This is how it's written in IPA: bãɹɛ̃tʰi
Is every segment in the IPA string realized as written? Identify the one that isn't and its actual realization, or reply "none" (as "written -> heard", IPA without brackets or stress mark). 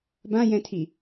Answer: ɹ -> j